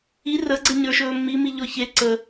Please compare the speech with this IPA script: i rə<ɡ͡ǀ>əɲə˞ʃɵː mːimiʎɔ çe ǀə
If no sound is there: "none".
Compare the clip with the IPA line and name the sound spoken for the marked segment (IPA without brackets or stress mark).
ɡ͡ǀ